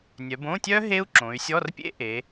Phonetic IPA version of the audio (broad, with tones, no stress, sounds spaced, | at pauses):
nʲ œ˩˧ b õ˧˥˧ tʲ œ˦˥ ɦ e˦˥ u̯ ǁ õ˩˧ y̯ sʲ ɔ˧˥˧ r pʲ ḛ˦˥ ʔ e˩˧